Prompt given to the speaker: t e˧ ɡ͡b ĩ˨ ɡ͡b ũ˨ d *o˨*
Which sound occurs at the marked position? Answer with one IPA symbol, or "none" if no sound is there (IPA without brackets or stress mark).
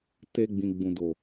o˨